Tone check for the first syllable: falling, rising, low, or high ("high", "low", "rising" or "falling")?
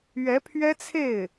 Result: rising